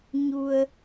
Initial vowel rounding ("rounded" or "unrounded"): rounded